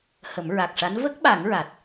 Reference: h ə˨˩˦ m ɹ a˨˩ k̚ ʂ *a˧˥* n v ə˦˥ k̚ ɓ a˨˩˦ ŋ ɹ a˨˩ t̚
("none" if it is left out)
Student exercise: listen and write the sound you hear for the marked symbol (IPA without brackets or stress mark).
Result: a˧˥